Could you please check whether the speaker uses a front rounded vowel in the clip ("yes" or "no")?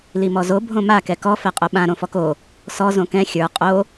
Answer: no